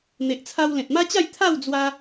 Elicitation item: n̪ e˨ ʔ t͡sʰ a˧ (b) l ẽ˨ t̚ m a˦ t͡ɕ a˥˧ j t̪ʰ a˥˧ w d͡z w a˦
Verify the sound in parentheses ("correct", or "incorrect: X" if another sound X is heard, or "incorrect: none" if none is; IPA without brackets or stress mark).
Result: incorrect: w